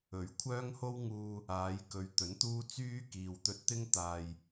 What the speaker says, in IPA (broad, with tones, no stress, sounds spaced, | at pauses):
ɵ˨˥ ɥ kʷʰ œː˥ ŋ h o˥ w ŋ uː˧ | aː˨˧ j k ɵ˨˧ ɥ t̪ ɵ˨˥ n t̪ uː˥ t͡s yː˥ k iː˨ w t̪ ɵ˧ t̚ t̪ ɪ˥ ŋ t̪ aː˨ j